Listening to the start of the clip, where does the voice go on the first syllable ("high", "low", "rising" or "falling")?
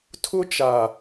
high